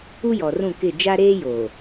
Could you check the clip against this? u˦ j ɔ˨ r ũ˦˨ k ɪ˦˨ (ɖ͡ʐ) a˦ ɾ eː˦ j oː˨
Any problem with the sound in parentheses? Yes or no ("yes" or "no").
yes